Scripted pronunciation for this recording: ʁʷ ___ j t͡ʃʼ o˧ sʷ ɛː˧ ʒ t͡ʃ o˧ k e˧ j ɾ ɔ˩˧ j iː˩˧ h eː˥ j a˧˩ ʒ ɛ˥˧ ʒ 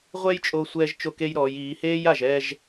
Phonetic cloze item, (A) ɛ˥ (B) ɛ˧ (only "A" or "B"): A